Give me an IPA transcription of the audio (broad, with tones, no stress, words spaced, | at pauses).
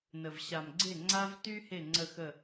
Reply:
nə˨vɕa˨mɡ͡ǀe˦˨ ŋ͡ǀa˦vty˦ he˦˨ ŋ͡ǀə˦˨xə˦˨